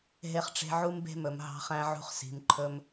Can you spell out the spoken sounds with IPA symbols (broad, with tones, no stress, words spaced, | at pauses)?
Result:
ɦe˧χʈ͡ʂe̤˧ ʕu˦mbe̤˦mɵ˨m ɦɑ̤˧χæ̃˧ʕṳ˧χsi̤˨m ǃʰɵ˧m